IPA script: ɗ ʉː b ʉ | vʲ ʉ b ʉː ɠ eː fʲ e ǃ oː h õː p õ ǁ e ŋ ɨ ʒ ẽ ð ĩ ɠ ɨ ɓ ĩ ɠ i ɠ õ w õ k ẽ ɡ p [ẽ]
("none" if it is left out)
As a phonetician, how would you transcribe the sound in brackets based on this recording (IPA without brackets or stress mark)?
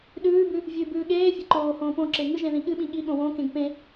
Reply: ẽ